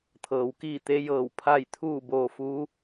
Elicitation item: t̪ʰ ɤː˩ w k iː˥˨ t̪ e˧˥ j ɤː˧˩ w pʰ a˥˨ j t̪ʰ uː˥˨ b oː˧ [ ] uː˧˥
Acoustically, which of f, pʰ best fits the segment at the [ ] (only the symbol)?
f